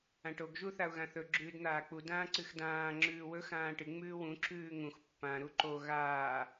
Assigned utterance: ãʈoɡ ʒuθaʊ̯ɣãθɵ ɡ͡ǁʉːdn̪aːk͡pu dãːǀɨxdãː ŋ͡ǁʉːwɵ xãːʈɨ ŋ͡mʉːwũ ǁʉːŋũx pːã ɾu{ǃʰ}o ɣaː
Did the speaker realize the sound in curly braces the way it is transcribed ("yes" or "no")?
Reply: no